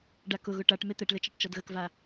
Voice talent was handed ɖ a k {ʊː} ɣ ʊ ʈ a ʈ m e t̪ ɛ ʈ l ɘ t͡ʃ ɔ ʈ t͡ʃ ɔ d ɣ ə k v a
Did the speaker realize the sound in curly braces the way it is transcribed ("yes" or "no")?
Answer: no